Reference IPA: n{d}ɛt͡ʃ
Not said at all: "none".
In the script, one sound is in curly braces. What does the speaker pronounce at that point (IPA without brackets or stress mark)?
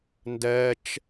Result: d